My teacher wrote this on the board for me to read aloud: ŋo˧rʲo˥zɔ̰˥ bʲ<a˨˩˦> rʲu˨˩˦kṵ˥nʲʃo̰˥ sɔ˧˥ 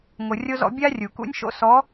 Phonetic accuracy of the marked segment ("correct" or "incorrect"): incorrect